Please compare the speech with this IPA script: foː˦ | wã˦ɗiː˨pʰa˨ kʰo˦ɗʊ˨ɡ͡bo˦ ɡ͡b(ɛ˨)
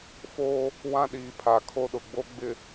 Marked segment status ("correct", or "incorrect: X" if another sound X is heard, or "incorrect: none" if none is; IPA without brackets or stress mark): incorrect: ɪ˨